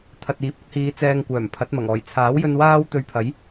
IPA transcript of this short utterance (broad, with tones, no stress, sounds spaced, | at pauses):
t̪ʰ ɐ˨ t̚ iː˨˥ p̚ ʊ˨˥ k̚ h iː˨˧ t͡s ɛː˧ ŋ kʷ œː˨˩ m pʰ ɐ˨˥ t̚ m ɐ˨˩ ŋ ɔː˨˩ j t͡sʰ aː˨˥ w j ɵ˧ n w aː˥ w t̪ ɵ˧ ɥ pʰ ɐ˨˥ j